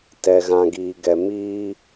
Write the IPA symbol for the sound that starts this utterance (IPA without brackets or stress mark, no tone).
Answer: t